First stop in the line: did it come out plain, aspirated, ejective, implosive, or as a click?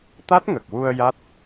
plain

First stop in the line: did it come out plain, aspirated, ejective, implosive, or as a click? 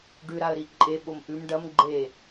plain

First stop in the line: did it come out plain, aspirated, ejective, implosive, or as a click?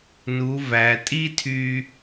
ejective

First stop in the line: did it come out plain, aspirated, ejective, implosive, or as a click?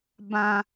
plain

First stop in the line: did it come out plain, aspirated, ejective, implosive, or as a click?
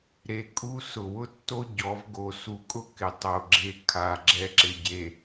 ejective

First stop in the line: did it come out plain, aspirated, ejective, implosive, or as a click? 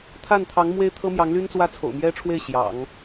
aspirated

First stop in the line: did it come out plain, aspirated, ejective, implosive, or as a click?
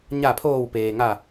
aspirated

